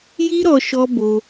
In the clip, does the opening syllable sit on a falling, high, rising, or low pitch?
high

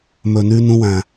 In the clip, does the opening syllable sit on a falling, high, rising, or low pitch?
low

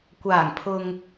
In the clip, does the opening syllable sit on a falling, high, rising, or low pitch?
low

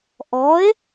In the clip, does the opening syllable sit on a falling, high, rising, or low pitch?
rising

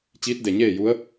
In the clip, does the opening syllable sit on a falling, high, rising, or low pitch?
rising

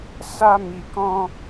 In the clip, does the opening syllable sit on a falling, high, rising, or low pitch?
high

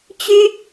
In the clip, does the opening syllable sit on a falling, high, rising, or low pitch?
high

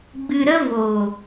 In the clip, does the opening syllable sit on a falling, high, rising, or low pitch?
low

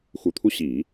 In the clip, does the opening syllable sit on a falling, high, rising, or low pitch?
low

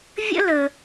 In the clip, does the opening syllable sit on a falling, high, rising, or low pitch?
high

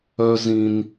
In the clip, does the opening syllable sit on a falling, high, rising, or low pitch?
high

